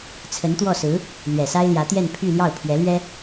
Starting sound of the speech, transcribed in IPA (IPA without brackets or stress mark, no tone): t͡sʰ